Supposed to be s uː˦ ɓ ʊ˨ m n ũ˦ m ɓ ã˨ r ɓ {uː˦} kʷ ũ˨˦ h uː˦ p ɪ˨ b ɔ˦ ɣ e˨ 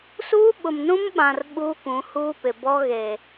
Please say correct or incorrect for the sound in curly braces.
correct